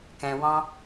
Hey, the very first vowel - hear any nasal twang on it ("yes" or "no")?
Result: yes